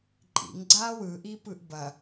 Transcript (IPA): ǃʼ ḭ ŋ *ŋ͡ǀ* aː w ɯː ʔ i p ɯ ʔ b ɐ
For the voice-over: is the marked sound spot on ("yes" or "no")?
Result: no